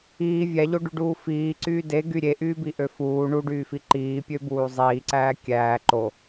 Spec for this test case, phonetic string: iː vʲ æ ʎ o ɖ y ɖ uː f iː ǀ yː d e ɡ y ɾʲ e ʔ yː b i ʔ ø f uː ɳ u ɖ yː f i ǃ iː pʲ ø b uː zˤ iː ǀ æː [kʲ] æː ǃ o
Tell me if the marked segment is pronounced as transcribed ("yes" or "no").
yes